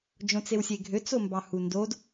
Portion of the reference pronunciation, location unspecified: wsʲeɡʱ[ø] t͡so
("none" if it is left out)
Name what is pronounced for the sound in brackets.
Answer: ø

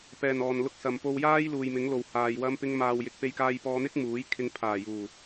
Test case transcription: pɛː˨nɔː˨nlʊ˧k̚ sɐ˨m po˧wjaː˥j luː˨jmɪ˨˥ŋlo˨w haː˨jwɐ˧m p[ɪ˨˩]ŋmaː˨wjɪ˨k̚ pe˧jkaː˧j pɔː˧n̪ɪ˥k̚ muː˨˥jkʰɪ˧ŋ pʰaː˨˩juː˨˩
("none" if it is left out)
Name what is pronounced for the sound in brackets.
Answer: ɪ˧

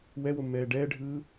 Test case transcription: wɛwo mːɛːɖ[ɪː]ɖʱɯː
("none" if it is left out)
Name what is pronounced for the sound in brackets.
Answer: ɛː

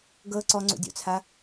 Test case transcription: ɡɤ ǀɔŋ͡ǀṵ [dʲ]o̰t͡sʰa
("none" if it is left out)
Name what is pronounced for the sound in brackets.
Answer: dʲ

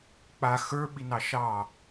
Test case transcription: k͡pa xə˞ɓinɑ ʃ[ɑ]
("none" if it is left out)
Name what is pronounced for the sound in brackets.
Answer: ɑ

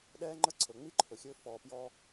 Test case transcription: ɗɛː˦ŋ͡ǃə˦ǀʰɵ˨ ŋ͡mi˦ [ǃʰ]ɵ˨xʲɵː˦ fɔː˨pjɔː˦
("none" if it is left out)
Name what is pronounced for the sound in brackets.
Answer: ǃʰ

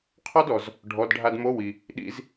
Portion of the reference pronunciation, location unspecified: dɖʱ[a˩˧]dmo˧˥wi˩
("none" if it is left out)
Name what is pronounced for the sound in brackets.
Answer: a˧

